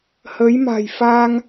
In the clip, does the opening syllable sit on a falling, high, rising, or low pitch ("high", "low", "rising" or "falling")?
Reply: rising